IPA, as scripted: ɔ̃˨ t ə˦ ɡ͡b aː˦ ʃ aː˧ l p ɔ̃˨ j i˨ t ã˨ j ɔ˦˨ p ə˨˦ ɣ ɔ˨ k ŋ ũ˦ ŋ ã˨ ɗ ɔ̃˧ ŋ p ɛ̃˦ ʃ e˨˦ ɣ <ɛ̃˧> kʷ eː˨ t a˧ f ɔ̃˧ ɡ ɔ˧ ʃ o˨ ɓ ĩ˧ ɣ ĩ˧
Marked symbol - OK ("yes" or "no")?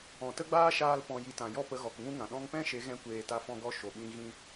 yes